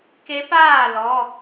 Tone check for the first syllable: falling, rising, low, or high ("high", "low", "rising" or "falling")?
rising